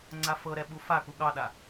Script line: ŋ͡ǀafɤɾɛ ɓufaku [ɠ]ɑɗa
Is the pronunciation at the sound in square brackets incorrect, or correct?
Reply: correct